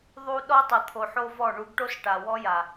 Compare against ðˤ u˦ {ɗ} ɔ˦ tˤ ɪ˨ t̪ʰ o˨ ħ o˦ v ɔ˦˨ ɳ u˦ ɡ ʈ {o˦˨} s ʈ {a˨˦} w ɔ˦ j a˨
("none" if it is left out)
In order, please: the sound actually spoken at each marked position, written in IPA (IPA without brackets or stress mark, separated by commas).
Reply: ɗ, o˦, a˨